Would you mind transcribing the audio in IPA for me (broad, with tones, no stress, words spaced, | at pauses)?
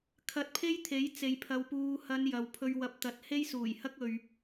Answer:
kʰɐ˧t̚pʰe˥jt̪ʰe˨˥jt͡se˨j pʰɐ˨wpuː˨hɐ˨˧n jɐ˨wpʰɵ˧ɥ wɐ˨p̚t̪ɐ˨t̚ he˥jsuː˨˩jhɐ˥k̚ ɵ˨ɥ